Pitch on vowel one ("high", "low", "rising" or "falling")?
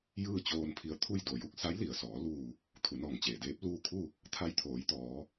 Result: falling